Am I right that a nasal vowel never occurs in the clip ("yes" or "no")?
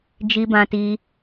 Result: no